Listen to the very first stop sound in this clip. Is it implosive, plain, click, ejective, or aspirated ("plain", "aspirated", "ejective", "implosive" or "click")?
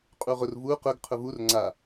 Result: ejective